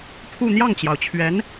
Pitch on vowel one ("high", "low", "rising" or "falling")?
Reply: falling